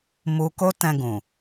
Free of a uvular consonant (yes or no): yes